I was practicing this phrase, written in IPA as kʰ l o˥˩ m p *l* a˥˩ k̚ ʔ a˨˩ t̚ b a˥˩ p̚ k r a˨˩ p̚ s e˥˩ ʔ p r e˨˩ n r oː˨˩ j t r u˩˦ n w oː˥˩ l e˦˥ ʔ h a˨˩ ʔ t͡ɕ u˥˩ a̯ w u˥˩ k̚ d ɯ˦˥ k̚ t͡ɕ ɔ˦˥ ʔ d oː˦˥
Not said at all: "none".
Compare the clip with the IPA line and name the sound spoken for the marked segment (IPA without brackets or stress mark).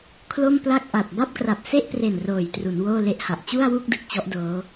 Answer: l